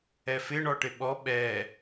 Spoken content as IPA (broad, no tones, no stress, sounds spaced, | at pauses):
ɛ f ɪ ɳ ɔ ʈ ɪ ɓ ɔ ɓ ɛ